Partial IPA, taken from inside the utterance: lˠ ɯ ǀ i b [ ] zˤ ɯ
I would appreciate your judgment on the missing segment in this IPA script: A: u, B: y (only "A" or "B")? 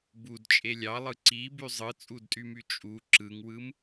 B